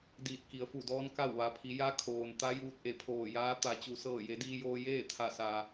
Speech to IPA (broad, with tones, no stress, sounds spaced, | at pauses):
d iː˧˩ t̚ k i˩˧ ə̯ f u˧˩ d ɔː˧˥ n k a˥˨ w ʋ a˩ pʰ i˩˧ j a˧ kʰ oː˩ n t̪ a˧˥ j uː˧ t̚ ʔ e˧˩ pʰ oː˧˩ j aː˧˥ t̪ a˩˧ t͡ɕ u˩ s ɤː˧˩ j e˩˧ d iː˧ j oː˧ j eː˥˨ t̪ʰ a˧˩ s a˩